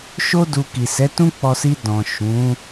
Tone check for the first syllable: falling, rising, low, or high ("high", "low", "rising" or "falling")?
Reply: high